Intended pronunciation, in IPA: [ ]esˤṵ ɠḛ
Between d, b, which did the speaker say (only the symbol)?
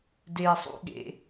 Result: d